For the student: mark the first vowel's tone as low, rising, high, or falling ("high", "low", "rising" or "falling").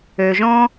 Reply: low